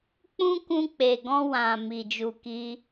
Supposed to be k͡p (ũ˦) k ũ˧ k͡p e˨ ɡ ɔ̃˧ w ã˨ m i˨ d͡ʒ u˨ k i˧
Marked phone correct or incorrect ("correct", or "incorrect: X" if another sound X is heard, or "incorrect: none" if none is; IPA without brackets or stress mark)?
correct